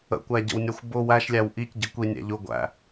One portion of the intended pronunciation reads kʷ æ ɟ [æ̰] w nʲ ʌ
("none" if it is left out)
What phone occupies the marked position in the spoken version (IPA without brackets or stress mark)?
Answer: ə̰